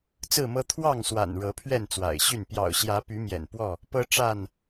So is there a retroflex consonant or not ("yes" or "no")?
yes